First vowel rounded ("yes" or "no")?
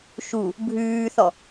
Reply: yes